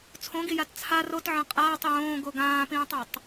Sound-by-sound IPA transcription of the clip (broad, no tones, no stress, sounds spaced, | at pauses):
t͡sʰ õ ɡ i j a t t͡sʰ a r o t ʕ ɐ̃ qʼ aː tˤ j õː ɡ o ɡ ãː p ĩː tˤ a tˤ